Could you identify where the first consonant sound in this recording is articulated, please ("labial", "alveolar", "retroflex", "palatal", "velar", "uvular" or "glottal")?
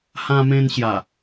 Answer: glottal